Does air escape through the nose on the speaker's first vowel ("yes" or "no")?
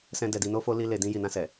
yes